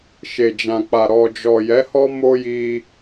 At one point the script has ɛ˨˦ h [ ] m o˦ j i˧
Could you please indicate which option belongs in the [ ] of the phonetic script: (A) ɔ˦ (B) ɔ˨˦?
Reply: A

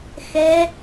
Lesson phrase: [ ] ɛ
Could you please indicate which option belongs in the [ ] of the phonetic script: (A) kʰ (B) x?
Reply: B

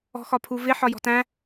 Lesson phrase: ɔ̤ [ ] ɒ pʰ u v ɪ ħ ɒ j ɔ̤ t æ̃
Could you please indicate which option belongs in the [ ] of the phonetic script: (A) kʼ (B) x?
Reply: B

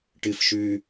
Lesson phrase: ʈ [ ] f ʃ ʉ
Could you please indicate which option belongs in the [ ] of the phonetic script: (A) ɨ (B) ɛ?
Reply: A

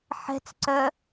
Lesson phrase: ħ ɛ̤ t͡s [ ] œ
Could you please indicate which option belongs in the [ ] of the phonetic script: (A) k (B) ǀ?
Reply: B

